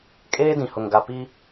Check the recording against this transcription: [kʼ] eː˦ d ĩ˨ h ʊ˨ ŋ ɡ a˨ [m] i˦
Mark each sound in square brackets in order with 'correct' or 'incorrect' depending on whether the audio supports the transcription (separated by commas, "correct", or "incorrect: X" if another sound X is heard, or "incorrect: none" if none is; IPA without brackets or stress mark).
correct, incorrect: p